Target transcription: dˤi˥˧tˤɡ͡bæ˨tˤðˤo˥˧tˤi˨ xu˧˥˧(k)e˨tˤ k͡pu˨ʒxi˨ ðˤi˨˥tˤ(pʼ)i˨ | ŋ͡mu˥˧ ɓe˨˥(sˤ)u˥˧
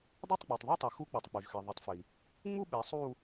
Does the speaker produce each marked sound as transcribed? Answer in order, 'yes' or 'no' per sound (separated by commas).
no, no, yes